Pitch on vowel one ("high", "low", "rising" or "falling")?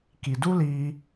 low